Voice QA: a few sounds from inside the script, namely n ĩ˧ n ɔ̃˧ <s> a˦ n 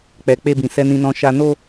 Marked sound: incorrect: ʃ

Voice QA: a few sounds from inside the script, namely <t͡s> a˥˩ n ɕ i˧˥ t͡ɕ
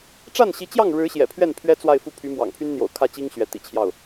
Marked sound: incorrect: ʈ͡ʂ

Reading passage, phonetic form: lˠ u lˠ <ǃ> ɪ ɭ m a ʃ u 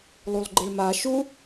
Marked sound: incorrect: ɡ͡ǃ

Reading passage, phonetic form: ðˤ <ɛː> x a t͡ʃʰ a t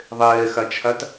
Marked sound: correct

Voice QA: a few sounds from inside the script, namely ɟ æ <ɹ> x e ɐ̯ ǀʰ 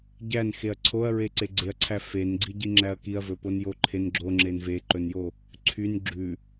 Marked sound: incorrect: n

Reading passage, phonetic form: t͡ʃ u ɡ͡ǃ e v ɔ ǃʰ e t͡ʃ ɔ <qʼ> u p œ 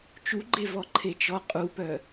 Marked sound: correct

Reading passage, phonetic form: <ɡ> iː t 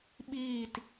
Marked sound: incorrect: ɓ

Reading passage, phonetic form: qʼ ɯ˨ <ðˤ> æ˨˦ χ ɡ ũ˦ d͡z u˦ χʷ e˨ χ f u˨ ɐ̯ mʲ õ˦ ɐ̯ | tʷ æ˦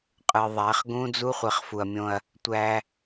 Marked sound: correct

